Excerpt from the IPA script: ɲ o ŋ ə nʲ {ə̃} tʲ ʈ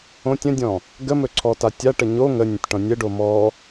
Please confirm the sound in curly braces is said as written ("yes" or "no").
yes